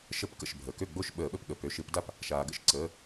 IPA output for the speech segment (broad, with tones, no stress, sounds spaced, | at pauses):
ʃ ə˧˩˧ p k ə̰˩˧˩ ʃ bʱ əː˩ k ø˥˩ ɡ͡b o˥˩ ʃ ɓ əː˧˩˧ ɓ ə˥˩ p ɠ ə˩˧˩ p ø˩˧˩ ʃ ɪ˧˩˧ p d a˥˩ p | ʃ aː˩ ɡ ə̰˦˥ ʃ ǀ əː˩˧˩